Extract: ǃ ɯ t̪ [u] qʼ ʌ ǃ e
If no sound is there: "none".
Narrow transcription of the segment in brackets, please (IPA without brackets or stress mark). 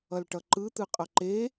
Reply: ɯ